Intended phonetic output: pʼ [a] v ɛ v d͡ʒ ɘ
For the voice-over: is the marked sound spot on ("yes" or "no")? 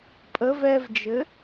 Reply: no